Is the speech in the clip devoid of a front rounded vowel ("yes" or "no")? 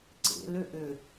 no